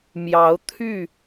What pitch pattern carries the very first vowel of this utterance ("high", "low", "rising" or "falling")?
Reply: rising